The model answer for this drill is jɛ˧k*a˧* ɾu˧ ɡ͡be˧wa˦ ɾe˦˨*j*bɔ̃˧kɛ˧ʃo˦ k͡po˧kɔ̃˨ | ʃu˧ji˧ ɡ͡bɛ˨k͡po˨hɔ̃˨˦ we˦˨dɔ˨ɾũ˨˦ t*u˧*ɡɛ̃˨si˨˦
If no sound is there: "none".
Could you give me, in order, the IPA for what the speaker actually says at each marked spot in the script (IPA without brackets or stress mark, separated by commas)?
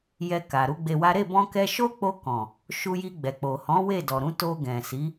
a˨, none, o˧